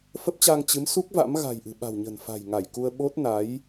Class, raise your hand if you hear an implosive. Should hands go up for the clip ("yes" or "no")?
yes